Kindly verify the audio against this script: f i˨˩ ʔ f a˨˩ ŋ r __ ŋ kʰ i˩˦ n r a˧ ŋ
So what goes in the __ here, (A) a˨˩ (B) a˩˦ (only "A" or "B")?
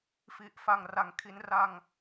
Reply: B